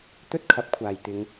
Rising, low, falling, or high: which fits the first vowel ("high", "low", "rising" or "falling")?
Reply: high